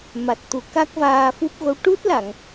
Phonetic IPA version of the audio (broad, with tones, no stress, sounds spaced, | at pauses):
m a˨˩ t̚ t̪ u˨˩ k a˦˥ k̚ v aː˧ f u˦˥ p̚ ɣ o˧˥ w ʈ u˦˥ t̚ l a˨˩˨ ŋ